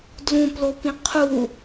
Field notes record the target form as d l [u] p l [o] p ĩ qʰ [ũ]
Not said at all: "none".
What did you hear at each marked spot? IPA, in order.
ũ, o, u

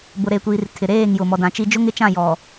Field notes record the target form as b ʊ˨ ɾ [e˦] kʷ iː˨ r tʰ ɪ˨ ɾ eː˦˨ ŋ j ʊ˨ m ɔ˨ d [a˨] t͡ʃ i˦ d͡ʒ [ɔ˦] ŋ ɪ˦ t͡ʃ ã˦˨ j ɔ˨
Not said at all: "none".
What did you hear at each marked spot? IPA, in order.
e˨, ã˨, ʊ˦

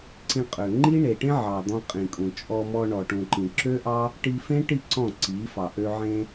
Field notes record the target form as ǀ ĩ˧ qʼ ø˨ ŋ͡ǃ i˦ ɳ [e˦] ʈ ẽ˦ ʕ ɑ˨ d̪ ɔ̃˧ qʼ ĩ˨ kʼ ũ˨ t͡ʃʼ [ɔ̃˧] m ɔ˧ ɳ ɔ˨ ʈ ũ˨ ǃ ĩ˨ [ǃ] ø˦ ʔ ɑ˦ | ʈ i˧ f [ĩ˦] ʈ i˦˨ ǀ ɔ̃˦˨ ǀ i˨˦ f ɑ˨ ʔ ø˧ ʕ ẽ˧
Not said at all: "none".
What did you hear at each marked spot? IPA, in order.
e˨, ɔ˧, ǁ, ẽ˦

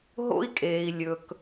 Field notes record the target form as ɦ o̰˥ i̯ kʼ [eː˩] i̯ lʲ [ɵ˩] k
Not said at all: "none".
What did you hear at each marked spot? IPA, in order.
eː˩, ɵ˩

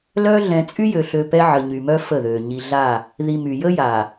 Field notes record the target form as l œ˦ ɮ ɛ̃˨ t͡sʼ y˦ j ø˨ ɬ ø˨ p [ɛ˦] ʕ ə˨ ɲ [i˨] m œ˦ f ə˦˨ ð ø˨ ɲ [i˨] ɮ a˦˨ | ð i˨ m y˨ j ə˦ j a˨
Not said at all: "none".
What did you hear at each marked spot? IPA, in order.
ɛ˦, y˨, i˨

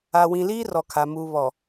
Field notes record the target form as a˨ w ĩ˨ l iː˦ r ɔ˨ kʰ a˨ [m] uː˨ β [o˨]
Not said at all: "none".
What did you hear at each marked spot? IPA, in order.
m, ɔ˨

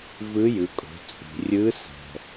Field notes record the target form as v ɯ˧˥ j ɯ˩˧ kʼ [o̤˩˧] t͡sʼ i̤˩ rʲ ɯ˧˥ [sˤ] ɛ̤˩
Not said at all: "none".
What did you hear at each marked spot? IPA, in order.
o̤˩˧, s

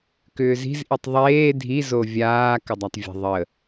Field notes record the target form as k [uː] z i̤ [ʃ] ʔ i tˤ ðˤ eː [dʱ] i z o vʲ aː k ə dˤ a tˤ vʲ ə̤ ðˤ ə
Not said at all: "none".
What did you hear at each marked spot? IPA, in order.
ʏː, z, dʱ

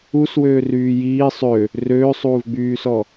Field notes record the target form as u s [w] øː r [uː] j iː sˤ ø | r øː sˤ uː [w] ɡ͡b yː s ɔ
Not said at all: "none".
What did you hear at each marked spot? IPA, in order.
w, yː, v

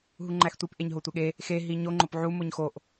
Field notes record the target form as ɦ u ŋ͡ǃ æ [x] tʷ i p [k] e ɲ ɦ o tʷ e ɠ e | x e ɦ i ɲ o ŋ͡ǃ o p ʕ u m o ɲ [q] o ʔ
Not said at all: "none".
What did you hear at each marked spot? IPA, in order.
x, ʔ, x

